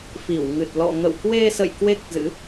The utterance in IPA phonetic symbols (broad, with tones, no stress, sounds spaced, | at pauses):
f i˧˩ w ŋ ɨ˨˩ t̚ l ɔ̰˧˨ ŋ ə̰˧˨ w k w e˧ s ə̰˧˨ j k w e˦˥ k̚ z ɨ̰˧˥